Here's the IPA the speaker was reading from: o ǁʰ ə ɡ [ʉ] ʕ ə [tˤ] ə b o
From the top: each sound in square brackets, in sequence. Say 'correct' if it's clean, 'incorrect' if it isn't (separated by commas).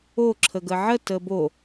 incorrect, incorrect